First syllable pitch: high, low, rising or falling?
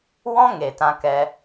high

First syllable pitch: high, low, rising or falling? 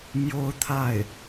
high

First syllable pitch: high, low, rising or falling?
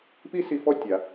high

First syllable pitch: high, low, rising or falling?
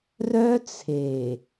high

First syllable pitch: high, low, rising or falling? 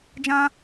high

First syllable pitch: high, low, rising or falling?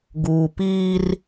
low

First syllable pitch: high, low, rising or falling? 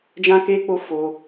high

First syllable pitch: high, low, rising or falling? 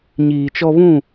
low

